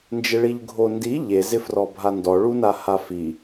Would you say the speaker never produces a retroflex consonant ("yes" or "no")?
no